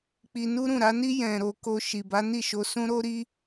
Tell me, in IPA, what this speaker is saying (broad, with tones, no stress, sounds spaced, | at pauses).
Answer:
k͡p i˧ n u˦ ɾ ũ˦˨ ɾ a˨˦ n i˦ j ɛ̃˧ ɾ o˧ k o˧ ʃ i˨ b a˨˦ n i˦˨ ʃ o˧ s ũ˦ ɾ o˦ ɾ i˦